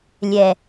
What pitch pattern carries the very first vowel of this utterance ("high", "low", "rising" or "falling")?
low